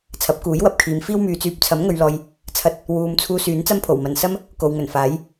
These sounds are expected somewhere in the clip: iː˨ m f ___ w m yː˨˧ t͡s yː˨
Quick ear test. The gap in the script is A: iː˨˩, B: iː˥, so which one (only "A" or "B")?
B